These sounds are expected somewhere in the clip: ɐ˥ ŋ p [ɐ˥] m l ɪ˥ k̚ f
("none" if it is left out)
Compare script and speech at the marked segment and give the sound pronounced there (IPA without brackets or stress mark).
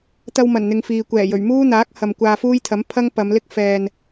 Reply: ɐ˨˧